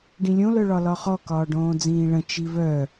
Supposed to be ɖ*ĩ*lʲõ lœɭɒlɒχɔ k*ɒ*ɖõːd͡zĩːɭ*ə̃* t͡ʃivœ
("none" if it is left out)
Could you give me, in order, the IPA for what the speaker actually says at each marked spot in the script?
ĩ, ɒː, ə̃

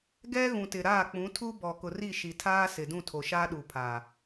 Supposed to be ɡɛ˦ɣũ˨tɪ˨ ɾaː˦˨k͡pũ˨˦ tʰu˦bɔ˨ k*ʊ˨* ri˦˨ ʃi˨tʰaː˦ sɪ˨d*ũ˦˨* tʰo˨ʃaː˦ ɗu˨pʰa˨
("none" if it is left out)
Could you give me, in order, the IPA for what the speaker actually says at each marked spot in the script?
ʊ˨, ũ˦˨

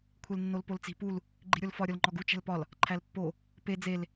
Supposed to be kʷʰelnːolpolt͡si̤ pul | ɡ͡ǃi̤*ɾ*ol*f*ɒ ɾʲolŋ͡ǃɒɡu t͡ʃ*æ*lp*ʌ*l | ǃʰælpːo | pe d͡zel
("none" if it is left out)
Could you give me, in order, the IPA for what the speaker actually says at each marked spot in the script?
ɾʲ, f, æ̤, ɒ

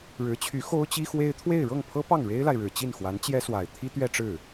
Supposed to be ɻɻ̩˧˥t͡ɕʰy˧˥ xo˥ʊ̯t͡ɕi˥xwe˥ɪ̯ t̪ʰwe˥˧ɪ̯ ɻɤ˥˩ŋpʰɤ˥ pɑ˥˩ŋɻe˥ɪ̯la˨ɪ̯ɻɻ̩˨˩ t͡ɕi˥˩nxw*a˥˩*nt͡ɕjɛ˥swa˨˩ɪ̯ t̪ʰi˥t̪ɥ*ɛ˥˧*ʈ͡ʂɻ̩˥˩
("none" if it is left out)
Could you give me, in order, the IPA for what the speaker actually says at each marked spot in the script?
a˧˥, ɛ˥˧

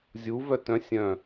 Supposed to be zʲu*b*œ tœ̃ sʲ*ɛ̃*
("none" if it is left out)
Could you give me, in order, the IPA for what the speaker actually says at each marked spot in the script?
v, œ̃

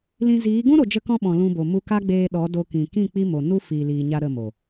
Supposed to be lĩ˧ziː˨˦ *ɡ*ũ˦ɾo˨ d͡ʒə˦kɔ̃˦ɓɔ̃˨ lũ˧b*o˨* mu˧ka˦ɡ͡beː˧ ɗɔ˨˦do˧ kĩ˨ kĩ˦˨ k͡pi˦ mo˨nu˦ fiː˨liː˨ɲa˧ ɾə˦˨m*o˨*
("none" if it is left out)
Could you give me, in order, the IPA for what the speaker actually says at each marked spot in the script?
ɡ, o˨, o˨

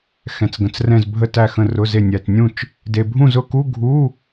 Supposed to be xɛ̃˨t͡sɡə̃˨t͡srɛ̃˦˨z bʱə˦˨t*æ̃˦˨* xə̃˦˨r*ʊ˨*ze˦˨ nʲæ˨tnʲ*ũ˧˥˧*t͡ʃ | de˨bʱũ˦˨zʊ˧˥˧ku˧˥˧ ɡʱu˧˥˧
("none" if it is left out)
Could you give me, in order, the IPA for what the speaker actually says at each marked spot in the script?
æ˦˨, ʊ˧˥˧, ũ˦˨

